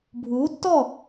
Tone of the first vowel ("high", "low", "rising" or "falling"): rising